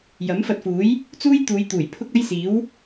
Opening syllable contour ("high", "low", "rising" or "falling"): rising